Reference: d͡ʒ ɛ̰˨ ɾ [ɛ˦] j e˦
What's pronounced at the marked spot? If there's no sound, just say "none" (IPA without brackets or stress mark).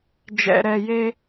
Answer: ɛ˨